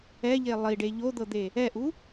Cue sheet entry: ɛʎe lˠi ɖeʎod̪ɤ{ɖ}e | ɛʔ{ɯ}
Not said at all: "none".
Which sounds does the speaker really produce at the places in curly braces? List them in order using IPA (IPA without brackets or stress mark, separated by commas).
d̪, u